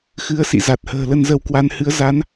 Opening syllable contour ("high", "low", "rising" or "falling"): rising